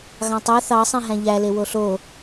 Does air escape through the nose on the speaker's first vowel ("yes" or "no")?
yes